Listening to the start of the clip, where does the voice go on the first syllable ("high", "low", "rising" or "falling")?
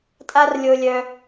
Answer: high